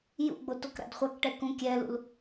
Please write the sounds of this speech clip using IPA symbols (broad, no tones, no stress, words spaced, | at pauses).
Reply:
jṵɡ͡botok ɾa̰dχʷakʈɛ kũkʲɛlṵl